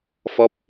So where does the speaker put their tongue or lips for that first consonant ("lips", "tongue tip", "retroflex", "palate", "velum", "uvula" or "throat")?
lips